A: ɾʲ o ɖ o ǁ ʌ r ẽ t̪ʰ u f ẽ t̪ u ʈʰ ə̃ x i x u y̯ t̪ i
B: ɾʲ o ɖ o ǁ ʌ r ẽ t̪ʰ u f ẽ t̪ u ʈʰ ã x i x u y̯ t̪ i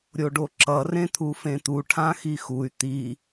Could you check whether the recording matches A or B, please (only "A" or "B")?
B